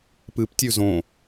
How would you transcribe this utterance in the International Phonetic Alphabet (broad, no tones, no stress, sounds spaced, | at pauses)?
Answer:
p ɨ p tʲ ʉ z õ